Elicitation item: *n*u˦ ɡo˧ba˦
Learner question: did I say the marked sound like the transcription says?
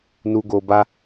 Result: yes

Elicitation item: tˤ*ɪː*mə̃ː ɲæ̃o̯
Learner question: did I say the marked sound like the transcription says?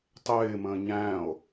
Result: yes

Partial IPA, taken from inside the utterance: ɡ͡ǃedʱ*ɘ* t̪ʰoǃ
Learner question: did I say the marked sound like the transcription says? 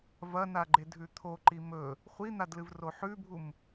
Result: no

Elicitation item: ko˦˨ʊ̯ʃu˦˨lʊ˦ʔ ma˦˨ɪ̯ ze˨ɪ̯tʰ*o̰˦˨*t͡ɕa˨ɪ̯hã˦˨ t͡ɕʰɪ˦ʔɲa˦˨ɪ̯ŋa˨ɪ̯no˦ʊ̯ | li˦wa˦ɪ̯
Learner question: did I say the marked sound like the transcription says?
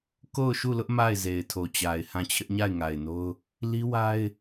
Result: no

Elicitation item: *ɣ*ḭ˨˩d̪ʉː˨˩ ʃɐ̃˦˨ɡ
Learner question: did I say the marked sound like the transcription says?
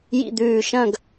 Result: no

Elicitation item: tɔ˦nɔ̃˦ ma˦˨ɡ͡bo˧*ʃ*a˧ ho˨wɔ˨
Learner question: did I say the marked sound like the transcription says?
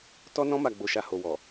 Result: yes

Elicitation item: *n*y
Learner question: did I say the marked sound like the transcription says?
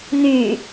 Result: yes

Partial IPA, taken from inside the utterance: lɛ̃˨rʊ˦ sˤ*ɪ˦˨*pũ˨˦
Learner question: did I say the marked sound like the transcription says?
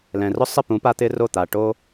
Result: yes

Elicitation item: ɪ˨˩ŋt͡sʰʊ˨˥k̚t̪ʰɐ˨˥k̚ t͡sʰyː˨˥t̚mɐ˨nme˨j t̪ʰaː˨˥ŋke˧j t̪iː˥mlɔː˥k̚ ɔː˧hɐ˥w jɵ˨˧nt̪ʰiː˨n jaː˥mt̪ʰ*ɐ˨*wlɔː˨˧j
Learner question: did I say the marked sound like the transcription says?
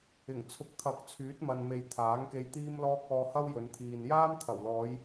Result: no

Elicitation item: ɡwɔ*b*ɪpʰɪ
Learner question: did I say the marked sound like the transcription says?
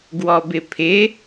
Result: yes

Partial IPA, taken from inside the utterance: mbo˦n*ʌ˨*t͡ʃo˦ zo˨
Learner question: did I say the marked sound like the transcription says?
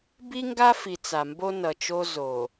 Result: yes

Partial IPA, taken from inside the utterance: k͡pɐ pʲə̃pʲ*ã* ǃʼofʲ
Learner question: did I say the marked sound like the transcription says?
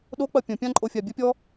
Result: yes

